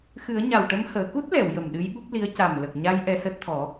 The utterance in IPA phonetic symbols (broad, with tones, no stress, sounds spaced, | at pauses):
x ɨ˨˩˦ ə̯ ɲ a˨˩ w ʈ ə˧ m h əː˨˩˨ k u˦˥ t̚ l ɛ˨˩˨ w j ə˨˩ m ɗ ɨ˧˥ j ɓ u˦˥ p̚ l i˧˥ ə̯ c a˨˩ m l ə˨˩ k̚ ɲ a˧ j ʔ ɛ˧ s əː˦˥ t̚ t̪ʰ ɔ˨˩˦